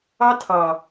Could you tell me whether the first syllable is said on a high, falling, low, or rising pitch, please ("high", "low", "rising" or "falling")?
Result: high